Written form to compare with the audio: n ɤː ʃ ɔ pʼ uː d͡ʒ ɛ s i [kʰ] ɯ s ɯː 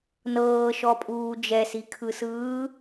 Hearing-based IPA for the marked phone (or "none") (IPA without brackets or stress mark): kʰ